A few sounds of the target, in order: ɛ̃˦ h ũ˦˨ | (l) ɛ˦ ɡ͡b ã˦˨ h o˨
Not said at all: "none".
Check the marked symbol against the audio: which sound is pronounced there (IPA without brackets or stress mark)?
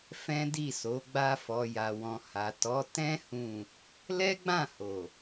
l